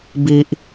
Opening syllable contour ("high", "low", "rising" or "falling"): high